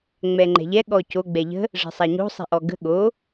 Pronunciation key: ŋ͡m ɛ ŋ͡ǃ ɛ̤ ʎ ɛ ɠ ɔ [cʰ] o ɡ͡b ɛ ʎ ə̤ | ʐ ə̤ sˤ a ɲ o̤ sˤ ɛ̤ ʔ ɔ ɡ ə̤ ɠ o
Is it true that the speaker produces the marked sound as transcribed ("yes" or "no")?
no